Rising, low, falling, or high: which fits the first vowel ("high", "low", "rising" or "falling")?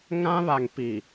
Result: high